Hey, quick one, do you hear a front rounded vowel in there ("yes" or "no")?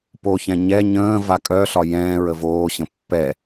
yes